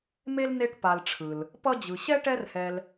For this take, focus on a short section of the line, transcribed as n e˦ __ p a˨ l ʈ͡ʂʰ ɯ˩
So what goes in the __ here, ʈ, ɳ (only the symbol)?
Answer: ʈ